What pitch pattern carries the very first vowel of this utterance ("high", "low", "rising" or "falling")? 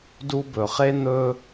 high